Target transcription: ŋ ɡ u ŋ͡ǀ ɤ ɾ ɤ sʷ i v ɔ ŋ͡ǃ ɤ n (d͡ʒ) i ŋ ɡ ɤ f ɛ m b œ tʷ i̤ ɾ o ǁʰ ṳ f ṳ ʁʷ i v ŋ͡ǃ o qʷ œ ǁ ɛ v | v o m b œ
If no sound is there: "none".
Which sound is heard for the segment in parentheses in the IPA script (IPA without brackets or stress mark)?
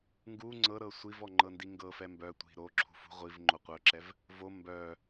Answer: d